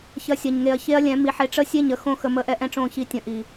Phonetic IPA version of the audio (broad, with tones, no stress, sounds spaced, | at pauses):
ç ɐ˦ sʲ ɐ˧ ɲ ŋ e˧ ɐ̯ ç e˦ ɐ̯ lʲ ɛ̃˨˦ m i˨˦ ħ e˧ ʈ͡ʂ ə˦ sʲ e˦˨ ɲ ə˧ x õ˦˨ x ə˧ m ə˦˨ ʔ ɛ˦ ʔ ɛ̃˦ ʈ͡ʂ õ˦˨ ç i˦ tʲ ə̃˧ ʔ i˨